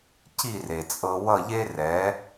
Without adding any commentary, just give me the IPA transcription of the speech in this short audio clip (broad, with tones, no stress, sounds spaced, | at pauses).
c i˥˩ r e˩ t͡sʼ ɤ˧ w ʌ˥˩ ʎ e˥ r ɛ˩˥